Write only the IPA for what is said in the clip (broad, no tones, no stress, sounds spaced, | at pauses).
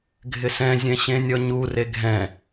ɡʱ ɪ s ɛ̃ zʲ ɛ̃ ɕ ẽ nʲ ɔ ɲ u r e ɡʱ ɛ̃